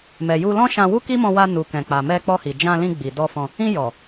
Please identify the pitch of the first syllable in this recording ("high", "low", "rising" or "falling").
low